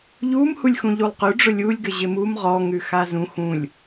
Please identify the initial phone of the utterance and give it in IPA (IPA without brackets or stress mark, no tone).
ʎ